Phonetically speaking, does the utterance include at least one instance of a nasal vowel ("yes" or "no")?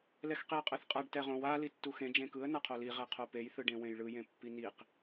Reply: yes